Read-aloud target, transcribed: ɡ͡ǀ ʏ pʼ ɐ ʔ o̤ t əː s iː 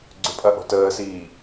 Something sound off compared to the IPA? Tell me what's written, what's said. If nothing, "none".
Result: none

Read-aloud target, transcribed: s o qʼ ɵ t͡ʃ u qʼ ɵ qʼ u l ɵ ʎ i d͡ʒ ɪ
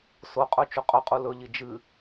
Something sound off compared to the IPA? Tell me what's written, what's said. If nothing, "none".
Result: ɪ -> ɨ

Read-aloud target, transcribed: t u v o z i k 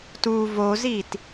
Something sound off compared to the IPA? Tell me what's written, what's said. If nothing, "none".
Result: k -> t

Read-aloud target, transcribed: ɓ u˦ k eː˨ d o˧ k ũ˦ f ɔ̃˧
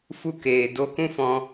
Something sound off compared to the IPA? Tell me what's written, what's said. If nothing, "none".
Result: ɓ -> f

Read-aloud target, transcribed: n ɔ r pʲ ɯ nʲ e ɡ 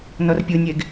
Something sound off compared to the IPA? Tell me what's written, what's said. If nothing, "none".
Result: none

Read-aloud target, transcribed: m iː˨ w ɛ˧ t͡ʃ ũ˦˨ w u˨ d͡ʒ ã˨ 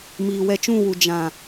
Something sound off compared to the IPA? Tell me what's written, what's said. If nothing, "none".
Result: none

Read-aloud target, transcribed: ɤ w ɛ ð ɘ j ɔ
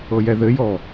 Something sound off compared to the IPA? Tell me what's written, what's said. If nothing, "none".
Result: w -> j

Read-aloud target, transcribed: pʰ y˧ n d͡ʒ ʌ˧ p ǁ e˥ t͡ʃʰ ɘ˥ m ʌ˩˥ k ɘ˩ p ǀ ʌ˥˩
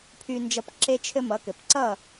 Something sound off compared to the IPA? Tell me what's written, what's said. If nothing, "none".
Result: none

